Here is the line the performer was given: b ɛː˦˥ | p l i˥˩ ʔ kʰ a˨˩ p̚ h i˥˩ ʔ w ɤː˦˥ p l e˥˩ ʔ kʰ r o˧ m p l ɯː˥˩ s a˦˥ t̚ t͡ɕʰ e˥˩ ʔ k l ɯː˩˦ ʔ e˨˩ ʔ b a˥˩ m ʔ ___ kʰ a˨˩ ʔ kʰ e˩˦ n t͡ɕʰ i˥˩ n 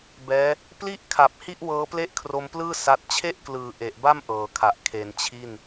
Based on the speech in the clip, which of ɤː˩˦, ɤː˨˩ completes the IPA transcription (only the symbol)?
ɤː˨˩